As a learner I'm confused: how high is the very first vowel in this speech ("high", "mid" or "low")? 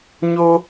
mid